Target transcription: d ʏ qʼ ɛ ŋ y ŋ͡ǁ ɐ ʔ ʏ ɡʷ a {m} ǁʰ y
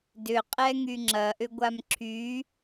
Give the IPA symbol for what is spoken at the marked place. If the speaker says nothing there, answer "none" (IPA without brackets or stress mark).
m